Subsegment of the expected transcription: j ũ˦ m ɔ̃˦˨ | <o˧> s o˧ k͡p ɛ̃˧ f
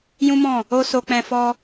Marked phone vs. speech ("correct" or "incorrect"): incorrect